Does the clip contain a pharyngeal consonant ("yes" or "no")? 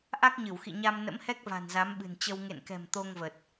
no